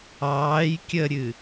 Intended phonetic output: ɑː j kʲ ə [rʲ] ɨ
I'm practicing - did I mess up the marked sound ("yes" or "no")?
yes